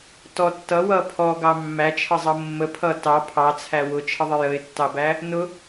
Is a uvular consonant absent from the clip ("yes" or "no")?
yes